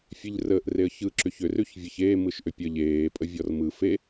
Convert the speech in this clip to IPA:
fʲ e ʎ r əː ʔ r e ə̯ ç ɯ ǁ ʏ ç ʏ r ʉ ç vʲ ɛ ç eː m ɯ ʃ ʔ ʏ pʲ ə ʎ eː pʼ ə vʲ ɔ r m ɯ f e

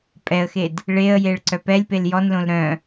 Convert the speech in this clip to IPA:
pʼ ɛ ə̯ x e d | ɭ e ə̯ j e ɭ ǀ œ p ɛ lʲ p e l j ɔ n l õ l ɾ œ̃

